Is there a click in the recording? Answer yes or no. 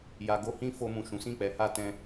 no